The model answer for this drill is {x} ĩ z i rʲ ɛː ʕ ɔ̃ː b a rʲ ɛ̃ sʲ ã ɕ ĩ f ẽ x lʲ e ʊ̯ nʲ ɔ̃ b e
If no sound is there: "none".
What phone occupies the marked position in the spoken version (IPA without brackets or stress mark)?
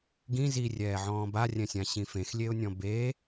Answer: ɡ